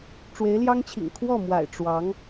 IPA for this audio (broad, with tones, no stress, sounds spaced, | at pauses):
ʈ͡ʂ w e˧˥ ɪ̯ l j ɑ˥ ŋ t͡ɕʰ ḭ˨˩ ŋ kʰ w ɔ˥˩ m w a̰˨˩ ɪ̯ ʈ͡ʂ w ɑ˧˥ ŋ